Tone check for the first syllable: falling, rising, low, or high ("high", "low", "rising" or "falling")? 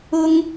high